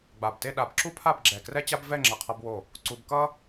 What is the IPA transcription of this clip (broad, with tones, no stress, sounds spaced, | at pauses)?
ɡ͡b a˧˩ b t e˥˧ ɗ a˧ b ǁ u˥ pʰ a˥˧ b ɡ͡ǁ ɛ˧˩ k r ɛ˥ t͡ɕ a˥ b v ɛ˥˧ ŋ͡ǁ ʌ˧˩ qʰ ʌ˧ b w o˧˩ | ǀ u˧ b k ʌ˥